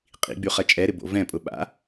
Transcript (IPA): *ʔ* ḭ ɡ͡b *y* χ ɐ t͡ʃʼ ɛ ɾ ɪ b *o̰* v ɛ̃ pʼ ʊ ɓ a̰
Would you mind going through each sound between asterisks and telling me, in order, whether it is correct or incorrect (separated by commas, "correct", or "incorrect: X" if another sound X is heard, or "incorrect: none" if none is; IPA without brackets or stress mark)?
incorrect: qʼ, correct, correct